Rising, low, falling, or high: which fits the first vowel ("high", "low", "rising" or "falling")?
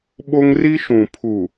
high